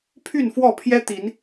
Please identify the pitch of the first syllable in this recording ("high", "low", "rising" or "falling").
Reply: falling